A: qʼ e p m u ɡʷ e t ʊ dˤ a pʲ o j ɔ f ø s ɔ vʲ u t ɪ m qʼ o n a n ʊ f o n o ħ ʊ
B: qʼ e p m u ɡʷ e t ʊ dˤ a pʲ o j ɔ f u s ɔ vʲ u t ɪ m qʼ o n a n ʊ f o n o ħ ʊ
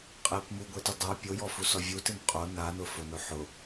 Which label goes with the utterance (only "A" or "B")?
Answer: B